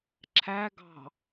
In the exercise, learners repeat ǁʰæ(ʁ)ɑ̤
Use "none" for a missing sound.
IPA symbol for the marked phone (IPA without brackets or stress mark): ɡ